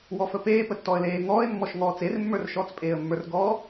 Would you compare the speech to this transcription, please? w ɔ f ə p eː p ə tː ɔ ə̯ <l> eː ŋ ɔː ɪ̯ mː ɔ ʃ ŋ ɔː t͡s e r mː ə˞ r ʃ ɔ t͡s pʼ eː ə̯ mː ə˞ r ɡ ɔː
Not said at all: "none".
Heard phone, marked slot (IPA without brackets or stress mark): l